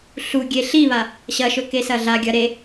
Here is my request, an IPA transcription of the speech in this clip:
ɬuɡʲe ɬiβa | ɕɐʃɵ kesɐɮaɡʲɐ ɾe

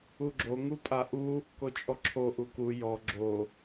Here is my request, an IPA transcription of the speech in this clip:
uɡ͡ǁo ŋupʼaʔu | kot͡ʃʼɔǁʰo ʔuku jɔ ɡ͡ǁo

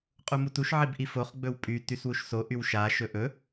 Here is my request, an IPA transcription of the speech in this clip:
qʼumutuʃ ʕibʔifoχ ɡ͡bɵwpʼy tyswuʃso ʔywʃa ʃɵʔɵ

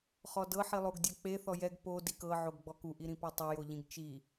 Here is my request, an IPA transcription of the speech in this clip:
χɔdɤ ħilˠoɡdʲak͡pe θɔjɛɡ po dikɤ ʕoɡɡ͡bɔku ʔiɾĩpatˤɤ joʎĩɡt͡ʃi

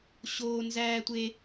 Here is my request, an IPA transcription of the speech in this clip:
ɕoː˥ nzæː˥tʷe˥

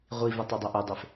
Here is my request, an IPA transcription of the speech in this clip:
ʁʷivɪ tˤɛdˤʊʔudˤef

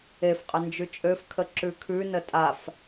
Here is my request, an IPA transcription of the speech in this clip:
efqʼə nd͡ʒʉt͡ʃʼøfkʰə ǁʉkʰʉnə tʼaf

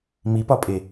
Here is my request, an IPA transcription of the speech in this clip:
mipɒpʼe

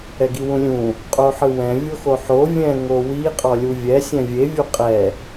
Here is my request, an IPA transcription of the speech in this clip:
ɛɡiwũlʲũ | qʼoħɯwɛ̃ vʲoxoħo vʲɛ̃ ŋowi qʼɔlʲuvʲɛ sʲɛ̃vʲe vʲuqʼɛ

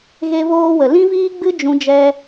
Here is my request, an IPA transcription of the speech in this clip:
ɣe˦voː˦wə˨ lĩ˦viː˦ɡ͡bɨ˦ d͡ʒũ˧d͡ʒɛ˧

